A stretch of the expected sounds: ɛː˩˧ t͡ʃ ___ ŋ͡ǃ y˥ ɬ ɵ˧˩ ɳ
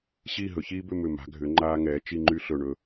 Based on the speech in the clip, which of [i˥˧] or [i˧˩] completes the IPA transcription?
i˥˧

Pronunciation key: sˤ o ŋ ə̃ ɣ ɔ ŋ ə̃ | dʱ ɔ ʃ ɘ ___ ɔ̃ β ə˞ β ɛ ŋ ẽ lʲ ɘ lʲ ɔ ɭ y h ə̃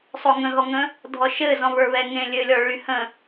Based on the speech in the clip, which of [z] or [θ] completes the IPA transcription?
z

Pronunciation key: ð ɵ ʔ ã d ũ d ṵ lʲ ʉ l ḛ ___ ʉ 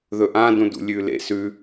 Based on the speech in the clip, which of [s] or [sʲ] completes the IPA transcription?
s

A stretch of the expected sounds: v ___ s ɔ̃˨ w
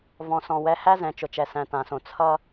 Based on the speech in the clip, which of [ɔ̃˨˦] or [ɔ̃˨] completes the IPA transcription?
ɔ̃˨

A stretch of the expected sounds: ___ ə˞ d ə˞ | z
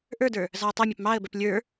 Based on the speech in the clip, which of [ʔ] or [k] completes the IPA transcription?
ʔ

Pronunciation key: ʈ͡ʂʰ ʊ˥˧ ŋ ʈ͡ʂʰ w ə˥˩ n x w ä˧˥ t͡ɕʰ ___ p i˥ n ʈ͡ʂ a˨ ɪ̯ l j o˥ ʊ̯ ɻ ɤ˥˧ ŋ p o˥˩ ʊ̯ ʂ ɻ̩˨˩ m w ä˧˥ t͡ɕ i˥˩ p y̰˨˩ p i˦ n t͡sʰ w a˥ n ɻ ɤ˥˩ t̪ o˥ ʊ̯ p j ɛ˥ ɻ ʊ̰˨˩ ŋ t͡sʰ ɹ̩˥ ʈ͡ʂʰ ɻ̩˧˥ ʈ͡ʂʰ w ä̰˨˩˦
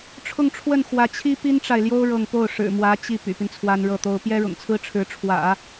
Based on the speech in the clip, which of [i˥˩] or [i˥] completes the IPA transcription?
i˥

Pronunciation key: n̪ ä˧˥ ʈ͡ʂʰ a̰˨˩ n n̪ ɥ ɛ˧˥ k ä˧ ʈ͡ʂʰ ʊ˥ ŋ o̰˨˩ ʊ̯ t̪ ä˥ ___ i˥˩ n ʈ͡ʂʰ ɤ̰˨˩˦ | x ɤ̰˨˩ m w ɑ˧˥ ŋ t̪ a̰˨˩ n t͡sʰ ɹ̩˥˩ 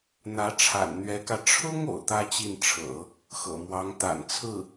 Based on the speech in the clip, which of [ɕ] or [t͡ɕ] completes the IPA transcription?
t͡ɕ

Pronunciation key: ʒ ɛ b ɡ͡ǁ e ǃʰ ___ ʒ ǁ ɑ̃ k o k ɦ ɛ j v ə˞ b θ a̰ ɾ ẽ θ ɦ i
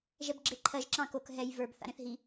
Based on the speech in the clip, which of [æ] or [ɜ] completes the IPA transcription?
ɜ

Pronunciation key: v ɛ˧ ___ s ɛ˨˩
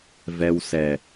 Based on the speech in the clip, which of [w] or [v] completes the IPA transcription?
w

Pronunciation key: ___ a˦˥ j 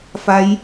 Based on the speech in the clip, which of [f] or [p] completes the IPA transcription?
f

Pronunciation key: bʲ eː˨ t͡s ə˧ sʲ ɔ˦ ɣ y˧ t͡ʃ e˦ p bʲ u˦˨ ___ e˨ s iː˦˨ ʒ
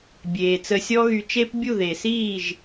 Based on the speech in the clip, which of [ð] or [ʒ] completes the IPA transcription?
ð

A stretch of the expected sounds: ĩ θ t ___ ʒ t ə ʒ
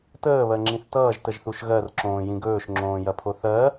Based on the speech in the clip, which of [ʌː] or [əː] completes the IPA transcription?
ʌː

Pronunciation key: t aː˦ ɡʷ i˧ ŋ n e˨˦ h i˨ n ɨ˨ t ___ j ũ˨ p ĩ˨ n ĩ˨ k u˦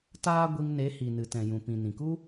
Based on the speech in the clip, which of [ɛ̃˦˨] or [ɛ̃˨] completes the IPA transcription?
ɛ̃˨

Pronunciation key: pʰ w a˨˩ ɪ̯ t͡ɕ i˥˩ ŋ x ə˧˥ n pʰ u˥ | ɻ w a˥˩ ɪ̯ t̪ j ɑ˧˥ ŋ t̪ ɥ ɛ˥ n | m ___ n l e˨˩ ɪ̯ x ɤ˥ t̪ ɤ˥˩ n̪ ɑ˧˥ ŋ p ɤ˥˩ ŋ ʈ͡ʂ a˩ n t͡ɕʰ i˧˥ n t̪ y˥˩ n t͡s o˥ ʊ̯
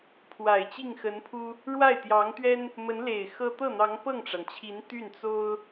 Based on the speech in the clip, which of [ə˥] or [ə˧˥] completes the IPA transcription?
ə˧˥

